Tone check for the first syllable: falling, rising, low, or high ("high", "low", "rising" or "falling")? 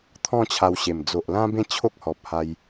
falling